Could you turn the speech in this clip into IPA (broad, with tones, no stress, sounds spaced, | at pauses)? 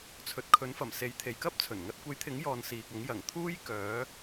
t͡sʰ ɵ˨ t̚ kʰ ɵ˨˥ n f ɐ˨˩ m s e˨˧ j t̪ʰ e˨ j k ɐ˥ p̚ t͡sʰ ɵ˨˩ n ŋ ɐ˧ t̚ kʷ e˨˥ j t̪ʰ ɪ˨˥ ŋ j ɔː˨ n s iː˨ k̚ ɐ˨˥ ŋ j ɐ˨˩ ŋ t̪ʰ uː˥ j k œː˨˥